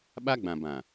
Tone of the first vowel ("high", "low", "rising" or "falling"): high